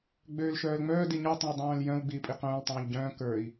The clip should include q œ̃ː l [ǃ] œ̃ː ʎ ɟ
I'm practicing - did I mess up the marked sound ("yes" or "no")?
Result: yes